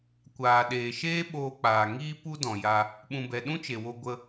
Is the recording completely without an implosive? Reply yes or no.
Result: no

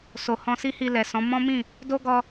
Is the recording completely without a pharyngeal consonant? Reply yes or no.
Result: yes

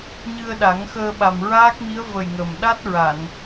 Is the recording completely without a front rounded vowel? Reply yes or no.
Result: yes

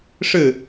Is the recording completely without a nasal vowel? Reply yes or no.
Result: yes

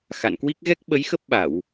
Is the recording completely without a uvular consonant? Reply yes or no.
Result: yes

